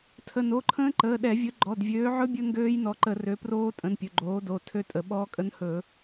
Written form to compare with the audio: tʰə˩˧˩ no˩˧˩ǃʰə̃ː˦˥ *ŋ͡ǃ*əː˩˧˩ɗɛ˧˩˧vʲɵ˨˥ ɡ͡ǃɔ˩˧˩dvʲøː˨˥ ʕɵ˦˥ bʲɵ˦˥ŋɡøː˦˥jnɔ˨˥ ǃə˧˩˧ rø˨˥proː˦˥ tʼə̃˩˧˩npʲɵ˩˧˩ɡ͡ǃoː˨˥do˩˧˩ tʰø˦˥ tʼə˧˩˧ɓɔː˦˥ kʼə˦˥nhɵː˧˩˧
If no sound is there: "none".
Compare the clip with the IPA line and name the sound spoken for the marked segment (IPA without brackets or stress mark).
ǃ